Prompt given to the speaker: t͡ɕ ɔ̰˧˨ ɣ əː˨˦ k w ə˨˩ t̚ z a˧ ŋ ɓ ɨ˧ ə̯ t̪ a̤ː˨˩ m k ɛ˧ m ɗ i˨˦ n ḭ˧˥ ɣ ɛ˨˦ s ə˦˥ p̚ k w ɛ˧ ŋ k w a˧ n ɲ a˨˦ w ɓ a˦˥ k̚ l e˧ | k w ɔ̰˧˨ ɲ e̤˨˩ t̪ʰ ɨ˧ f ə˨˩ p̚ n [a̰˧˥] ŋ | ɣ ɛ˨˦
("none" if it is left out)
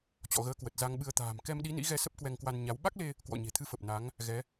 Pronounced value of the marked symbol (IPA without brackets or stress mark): a˨˦